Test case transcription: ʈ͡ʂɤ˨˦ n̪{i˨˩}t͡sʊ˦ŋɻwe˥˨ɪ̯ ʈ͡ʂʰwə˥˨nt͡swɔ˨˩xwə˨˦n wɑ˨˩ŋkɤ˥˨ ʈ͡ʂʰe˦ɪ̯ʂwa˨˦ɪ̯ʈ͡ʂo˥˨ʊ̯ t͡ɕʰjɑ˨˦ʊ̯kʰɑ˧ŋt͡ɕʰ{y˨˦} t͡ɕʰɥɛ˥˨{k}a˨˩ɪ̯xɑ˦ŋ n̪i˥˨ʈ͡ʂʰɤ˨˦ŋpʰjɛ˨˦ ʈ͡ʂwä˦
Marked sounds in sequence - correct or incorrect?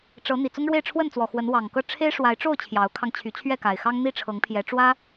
correct, correct, correct

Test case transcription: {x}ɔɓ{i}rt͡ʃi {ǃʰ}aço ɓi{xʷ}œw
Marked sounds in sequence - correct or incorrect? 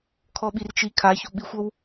incorrect: kʰ, correct, incorrect: kʰ, correct

